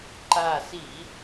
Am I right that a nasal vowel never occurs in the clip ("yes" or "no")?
yes